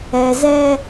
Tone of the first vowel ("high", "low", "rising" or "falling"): low